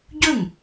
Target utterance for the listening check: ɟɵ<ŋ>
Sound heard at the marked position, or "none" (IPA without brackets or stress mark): ŋ